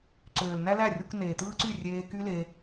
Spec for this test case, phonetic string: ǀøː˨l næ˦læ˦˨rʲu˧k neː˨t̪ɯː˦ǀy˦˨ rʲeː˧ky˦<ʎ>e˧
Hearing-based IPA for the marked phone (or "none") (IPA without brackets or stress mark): l